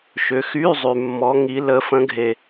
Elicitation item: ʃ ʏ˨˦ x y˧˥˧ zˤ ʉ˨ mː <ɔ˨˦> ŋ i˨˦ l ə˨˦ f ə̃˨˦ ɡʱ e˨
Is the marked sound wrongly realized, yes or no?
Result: no